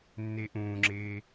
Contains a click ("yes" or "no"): yes